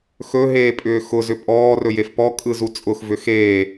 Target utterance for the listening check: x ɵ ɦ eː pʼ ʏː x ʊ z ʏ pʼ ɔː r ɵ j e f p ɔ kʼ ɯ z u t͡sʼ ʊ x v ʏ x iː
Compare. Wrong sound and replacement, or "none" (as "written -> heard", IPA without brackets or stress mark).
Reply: iː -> eː